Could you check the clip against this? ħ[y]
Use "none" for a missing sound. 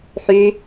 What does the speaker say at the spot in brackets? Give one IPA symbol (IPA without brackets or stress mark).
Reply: y